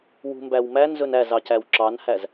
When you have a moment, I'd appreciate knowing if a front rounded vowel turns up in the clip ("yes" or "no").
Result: no